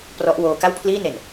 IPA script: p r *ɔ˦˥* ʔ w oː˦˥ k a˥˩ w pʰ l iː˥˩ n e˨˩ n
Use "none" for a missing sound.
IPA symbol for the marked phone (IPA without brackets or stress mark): ɔ˦˥